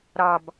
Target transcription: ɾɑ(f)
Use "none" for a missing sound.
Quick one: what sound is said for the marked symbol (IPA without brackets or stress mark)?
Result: b